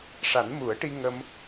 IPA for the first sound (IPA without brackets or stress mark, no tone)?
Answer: ʂ